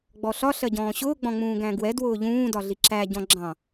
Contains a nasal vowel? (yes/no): yes